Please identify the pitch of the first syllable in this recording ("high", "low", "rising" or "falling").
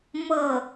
falling